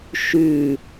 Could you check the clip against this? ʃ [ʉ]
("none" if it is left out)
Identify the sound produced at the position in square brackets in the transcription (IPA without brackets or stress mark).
ʉ